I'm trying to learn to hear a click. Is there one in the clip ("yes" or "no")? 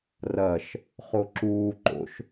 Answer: yes